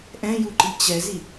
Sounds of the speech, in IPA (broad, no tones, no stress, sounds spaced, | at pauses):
ʔ ɛ̃ j u ǃ i t͡ɕ ɛ z i